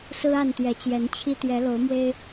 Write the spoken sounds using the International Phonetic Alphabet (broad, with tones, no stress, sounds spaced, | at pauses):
s ɹ̩˦ a˥˨ n t̪ j ɛ˨˦ t͡ɕ j ɛ˨˦ n t͡ɕʰ i˦ t̪ j ɛ˨˦ l o˨˦ ʊ̯ m w e˦ ɪ̯